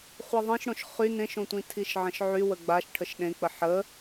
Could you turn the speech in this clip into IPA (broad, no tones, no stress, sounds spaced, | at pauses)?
χʷ i ðˤ ĩ ʃ ɽ õ ʃ χ y n ẽ ʃ õ tʷ ĩ tʰ i ʃ ʕ ə̃ ʃ ʕ y w ə ɡ͡b a ʃ ʈʰ ə ʃ ɗ ẽ k͡p ə ħ ə